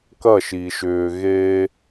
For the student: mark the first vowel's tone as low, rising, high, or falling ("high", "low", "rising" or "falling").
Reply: falling